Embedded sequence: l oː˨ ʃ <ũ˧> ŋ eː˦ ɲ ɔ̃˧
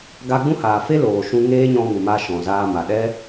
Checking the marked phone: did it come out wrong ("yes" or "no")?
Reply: no